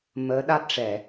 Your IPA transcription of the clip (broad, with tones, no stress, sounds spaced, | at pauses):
m əː˧˥ ɗ a˦˥ t̚ ʂ ɛ˨˩˨